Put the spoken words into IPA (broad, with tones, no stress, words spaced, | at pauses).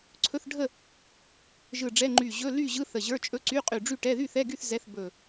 ǀʰɵ˧˥˧θɖʱə˥˨ | ʒɯ˧˩ɖ͡ʐɛ˧˥˧ ŋ͡ǃy˧˩ʑɵ˧˥˧ ly˥˨ʑɯ˧˥˧ θə˧˩ʑə˞˧˥˧ t͡ʃʼɵ˧˥˧ǀy˧˥˧qʼy˧˩ ɖ͡ʐy˥˨ʈɛ˧˥˧ ðy˥˨θɛ˧˥˧ɡy˥˨θ zɛ˧˥˧θbɵ˧˩